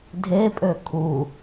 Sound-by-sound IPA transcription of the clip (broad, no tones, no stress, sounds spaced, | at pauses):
dʱ e pʼ ø kʰ u